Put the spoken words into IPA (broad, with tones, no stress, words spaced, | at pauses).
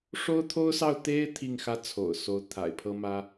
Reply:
ʂo˥ʊ̯t̪ʰo˥ʊ̯sɑ˥˩ʊ̯ t̪e˥ɪ̯ t̪ʰi˥˩ŋxä˥ t͡sʰo̰˨˩ʊ̯so˧˥ʊ̯ t̪ʰa̰˨˩ɪ̯pʰɤ˥mä˥